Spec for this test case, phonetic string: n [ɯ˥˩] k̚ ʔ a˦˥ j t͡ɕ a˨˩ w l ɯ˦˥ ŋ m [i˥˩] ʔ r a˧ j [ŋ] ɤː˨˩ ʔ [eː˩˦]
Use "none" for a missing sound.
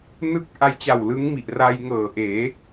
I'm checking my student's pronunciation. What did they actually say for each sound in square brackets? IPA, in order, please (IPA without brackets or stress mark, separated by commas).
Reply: ɯ˥˩, i˨˩, ŋ, eː˩˦